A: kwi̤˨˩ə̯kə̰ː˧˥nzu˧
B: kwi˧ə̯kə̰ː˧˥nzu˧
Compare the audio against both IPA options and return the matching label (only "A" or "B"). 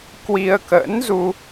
B